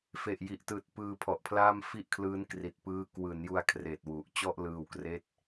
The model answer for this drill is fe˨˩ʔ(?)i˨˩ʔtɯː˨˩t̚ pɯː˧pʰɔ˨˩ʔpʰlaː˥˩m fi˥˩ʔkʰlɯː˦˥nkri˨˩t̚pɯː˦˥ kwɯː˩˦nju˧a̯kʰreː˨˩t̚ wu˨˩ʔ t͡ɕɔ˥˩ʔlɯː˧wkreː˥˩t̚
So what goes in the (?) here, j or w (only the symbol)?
j